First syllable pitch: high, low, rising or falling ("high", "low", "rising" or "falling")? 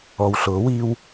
low